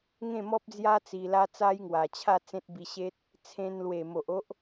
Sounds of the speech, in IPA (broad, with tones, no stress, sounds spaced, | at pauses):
ŋ ẽ˥˧ m ɔ˦ p̚ d͡z j a˦ t͡s i˧ l a˦ t͡s a˦ j ŋ w a˨˩ t͡ɕʰ a˥˧ t͡s ẽ˦ t̚ b i˧ ɕ e˦ t̚ | t͡sʰ ẽ˧ n l w e˨˩ m o˨ ʔ o˦ ʔ